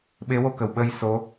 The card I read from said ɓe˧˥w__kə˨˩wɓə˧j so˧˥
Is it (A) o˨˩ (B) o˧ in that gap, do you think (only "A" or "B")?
B